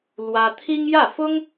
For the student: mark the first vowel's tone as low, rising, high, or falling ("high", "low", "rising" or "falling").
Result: high